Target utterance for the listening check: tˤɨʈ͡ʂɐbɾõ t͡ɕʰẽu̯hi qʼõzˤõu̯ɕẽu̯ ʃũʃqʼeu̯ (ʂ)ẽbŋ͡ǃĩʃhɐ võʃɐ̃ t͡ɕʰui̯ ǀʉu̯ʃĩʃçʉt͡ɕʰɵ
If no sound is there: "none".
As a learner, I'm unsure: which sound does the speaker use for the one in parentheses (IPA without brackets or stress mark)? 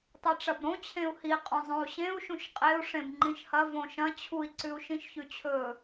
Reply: ʂ